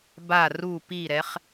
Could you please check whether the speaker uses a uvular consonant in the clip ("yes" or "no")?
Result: yes